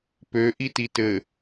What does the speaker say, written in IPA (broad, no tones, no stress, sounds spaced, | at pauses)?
p ø ʔ i t i t ɘ